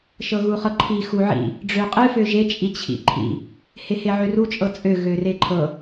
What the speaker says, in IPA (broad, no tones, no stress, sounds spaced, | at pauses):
ʃ ɤ ɣ u χ ɤ ǃʰ i x u ʕ ḭ | ɖ͡ʐ ø qʼ ɨ f ø ʒ e t͡ʃʼ i t͡ɕʰ ḭ ǃʰ ḭ | h e h e ʕ ø r u t͡ʃʼ ɤ t͡sʼ ø ɣ ø r e ǃʰ ɤ